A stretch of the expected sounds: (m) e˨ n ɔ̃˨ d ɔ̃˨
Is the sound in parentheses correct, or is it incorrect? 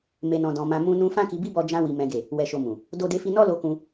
correct